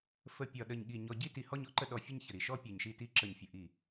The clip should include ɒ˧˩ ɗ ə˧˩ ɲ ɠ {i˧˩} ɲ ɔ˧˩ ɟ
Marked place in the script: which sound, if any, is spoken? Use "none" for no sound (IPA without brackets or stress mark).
i˧˩